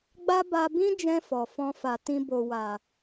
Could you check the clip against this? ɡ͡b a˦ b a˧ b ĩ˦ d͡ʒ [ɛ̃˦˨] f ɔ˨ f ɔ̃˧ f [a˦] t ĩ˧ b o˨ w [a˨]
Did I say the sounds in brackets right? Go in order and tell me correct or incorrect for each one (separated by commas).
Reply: incorrect, incorrect, correct